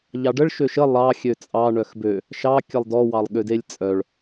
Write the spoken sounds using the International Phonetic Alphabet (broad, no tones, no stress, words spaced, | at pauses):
ʎɑɖəɭ ʃøʃə lˠɑ xʲøt͡sʼɑ ɳœxbø | ʃɑ kʲəlˠdɔ wɑlˠɠødelʲt͡sʼœɭ